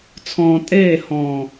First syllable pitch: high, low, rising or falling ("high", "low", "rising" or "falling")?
low